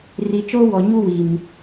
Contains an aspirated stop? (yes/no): no